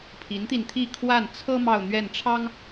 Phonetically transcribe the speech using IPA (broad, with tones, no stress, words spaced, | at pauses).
pʰi˧˥nt̪i˧nt̪ʰi˥˧ kʰwa˥˩n t͡sʰɤ˥ mɑ˥˧ʊ̯n̪ɥɛ˥˩nʈ͡ʂʰɑ˥ŋ